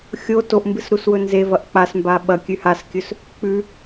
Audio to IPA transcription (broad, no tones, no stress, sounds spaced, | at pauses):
xʲ o t o ʔ m b ɨ s ɾ u s w ɵ n z e v ɐ ʔ k͡p a s m b a ɓ ɐ kʲ ʉ h a s kʲ ɵ s | k͡p ʉ